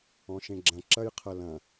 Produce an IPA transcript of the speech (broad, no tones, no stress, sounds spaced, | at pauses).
ɔ̃ ʃ ẽ ɡ͡ǁ ɐ̃ ǁ ɐ j qʰ ɐ l ɐ̃